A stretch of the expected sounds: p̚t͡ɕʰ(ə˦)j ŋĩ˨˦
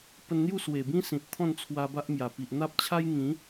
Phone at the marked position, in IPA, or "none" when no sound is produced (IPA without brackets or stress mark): a˦